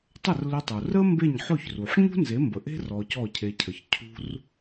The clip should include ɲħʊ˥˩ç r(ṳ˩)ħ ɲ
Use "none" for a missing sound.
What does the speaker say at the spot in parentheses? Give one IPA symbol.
u˩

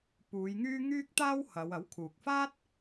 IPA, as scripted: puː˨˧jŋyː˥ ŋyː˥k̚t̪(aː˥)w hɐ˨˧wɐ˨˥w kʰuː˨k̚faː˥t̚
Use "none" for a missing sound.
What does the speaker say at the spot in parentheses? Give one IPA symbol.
aː˥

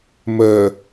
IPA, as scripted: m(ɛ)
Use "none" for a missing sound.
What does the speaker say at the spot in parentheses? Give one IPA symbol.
ɜ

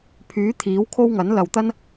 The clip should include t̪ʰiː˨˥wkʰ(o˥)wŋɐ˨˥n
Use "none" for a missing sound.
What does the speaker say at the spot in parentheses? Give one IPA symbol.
o˥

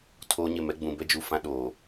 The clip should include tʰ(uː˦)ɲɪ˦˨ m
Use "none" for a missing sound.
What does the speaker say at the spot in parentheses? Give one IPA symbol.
oː˦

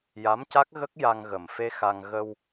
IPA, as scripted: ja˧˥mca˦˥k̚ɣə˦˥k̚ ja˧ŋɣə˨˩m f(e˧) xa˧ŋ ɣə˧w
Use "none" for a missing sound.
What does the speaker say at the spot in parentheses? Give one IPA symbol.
e˧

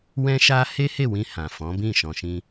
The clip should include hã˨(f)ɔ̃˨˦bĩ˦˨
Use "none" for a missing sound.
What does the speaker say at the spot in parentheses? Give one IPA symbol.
f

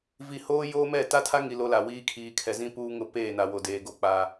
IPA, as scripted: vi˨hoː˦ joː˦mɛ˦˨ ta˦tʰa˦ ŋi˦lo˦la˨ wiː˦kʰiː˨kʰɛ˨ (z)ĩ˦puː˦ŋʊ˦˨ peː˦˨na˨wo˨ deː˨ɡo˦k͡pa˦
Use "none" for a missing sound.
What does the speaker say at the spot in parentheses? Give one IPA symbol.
z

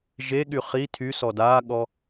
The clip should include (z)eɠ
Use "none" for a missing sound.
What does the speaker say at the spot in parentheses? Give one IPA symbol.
ʒ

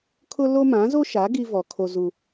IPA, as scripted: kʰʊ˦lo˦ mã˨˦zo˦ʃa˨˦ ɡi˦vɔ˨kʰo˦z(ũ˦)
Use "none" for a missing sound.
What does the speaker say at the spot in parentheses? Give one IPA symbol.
u˦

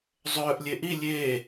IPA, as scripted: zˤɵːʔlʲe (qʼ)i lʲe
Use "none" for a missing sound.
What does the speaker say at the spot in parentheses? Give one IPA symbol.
ʔ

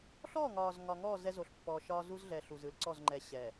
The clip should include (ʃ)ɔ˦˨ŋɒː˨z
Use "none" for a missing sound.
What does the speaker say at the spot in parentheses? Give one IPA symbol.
ɬ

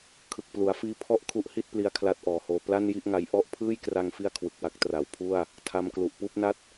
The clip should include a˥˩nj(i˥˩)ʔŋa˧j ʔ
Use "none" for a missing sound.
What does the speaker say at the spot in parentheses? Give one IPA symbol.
i˥˩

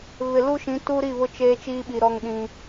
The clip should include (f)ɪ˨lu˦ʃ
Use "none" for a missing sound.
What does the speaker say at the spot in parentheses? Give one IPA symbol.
β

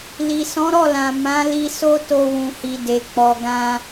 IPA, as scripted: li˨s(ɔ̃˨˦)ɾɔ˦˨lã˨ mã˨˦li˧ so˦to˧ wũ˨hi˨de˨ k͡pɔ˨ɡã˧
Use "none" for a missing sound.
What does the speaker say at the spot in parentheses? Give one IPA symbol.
ɔ̃˨˦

